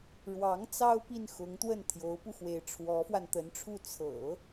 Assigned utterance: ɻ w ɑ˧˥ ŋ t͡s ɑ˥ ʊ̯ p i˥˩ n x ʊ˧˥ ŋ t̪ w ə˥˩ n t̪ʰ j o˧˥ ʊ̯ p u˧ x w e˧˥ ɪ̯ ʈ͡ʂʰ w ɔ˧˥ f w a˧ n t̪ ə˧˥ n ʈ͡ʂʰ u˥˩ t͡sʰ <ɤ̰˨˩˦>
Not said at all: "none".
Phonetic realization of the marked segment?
ɤ̰˨˩˦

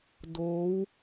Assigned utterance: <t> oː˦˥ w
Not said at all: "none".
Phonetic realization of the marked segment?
d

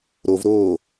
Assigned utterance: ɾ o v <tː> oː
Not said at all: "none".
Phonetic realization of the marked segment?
ɾ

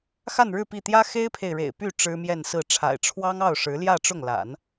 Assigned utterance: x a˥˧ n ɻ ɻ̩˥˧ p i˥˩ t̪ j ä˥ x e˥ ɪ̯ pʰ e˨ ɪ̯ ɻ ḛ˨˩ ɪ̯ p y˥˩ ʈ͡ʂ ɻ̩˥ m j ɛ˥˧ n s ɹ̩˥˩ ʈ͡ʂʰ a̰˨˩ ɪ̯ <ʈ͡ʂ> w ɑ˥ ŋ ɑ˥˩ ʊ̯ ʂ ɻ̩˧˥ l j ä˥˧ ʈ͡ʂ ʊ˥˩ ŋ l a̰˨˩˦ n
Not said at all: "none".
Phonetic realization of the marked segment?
ʈ͡ʂʰ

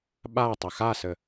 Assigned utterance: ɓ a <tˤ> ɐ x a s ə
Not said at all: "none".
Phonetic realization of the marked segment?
tˤ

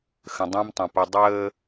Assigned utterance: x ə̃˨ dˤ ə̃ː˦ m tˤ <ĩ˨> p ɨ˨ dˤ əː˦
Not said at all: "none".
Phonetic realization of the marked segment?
ĩ˨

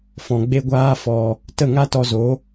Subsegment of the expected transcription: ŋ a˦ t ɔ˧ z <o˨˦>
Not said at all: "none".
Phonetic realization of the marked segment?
o˨˦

